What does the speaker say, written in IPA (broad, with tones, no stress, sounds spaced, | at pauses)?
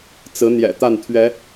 t͡s ɹ̩˨˦ n̪ j ɛ̰˨˩ t̪ a˥˨ n t̪ʰ ɥ ɛ˨˦